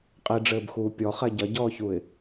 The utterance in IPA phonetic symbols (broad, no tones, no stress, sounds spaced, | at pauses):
qʼ i ɖ͡ʐ ɘː b x uː pʲ ɔ χ ɛ ɟ ɐ ɟ ɔː ç u ɪ̯